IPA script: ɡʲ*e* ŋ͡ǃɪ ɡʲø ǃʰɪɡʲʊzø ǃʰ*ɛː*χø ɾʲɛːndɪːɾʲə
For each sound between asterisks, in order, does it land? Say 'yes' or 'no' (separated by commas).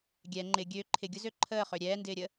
no, no